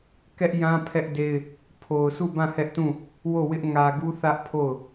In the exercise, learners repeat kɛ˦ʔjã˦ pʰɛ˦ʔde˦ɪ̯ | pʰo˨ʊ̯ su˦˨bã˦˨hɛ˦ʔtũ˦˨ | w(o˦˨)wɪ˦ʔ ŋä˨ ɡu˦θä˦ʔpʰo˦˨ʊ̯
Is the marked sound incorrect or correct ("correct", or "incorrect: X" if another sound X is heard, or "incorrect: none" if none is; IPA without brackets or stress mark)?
correct